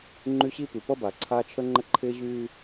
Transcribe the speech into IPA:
ŋ͡ǃ y˦ ɕ i˦ p y˨ p ʌ˦ b a˨ ǀʰ aː˦ t͡ʃʰ ə˦ ŋ͡ǃ ə˦ ǃʰ ɪː˦ ʑ yː˦

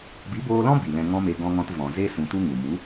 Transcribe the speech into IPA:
b i˨˦ b oː˧ l ɔ̃˦ b i˨ l ɛ̃˧ ŋ ɔ̃˦ m e˧ ɡ ɔ̃˧ ŋ ɔ̃˧ t v ɔ̃˨ z e˦ s ũ˧ t u˦ ŋ u˨ m u˨˦

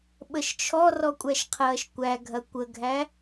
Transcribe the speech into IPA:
ɓ ə ʃ t͡ʃʰ ɔ r ɔ kʷʼ æ ʃ qʰ ɐː ʃ kʷ æ ɡʱ ɐ kʷ ə ɡʱ æ

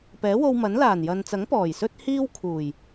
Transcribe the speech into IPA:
p ɛː˨˥ w o˧ w m ɐ˨˥ n l aː˨˩ n j ɐ˨ n t͡s ɐ˨˥ ŋ p ɔː˨˩ j s ɵ˥ t̚ h iː˥ w kʰ uː˨˩ j

